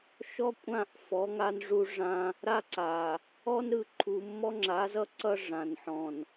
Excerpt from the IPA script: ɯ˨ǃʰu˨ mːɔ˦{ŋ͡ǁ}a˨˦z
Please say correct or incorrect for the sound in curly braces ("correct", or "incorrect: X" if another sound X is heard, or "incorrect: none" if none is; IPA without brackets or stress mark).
correct